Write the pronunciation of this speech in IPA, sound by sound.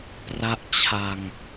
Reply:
p r a˦˥ ʔ t͡ɕʰ a˧ ŋ

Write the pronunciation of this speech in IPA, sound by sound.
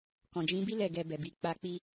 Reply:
k ɔ̃˨ d͡ʒ ĩ˨˦ b i˦ l ɛ˦˨ ɡ ɛ˧ b ɛ˨ b i˨ k͡p a˧ k͡p i˧

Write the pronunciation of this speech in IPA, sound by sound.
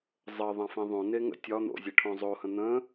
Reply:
zˤ ə ðˤ ã f ẽ ðˤ õ n e ŋ ə̰ tʲ ɒ n̪ o̰ zʲ e ʈʰ õ zˤ o h ə̃ n̪ ə̃

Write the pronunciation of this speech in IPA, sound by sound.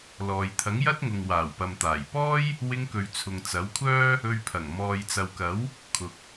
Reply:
l ɔː˨ j t̪ʰ ɐ˨˥ ŋ j ɐ˥ t̚ ŋ ʊ˨ ŋ w aː˨˩ w p ɐ˨ m t̪ aː˨˩ j p ɔː˥ j | w ɪ˧ ŋ k ɵ˨ ɥ t͡sʰ ʊ˨ ŋ t͡s ɐ˨˥ w kʷʰ œː˥ | ɵ˧ ɥ pʰ ɐ˨˩ ŋ m ɔː˨ j t͡s ɐ˨ w k ɐ˨˥ w | kʰ ʊ˨ k̚

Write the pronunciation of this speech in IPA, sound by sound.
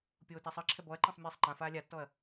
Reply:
pʲ oː t a sˤ ɯ ǁʰ ɛ b ɔ ɐ̯ ǃ ã sˤ mʲ ɛː sˤ ŋ͡ǃ ã f aː lʲ a tː ɔ ɐ̯

